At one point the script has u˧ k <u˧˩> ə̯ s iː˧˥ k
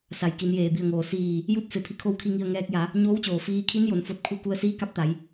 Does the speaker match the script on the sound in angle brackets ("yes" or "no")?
no